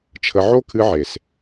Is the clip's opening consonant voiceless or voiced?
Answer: voiceless